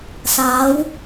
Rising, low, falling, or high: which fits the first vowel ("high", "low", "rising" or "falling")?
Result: rising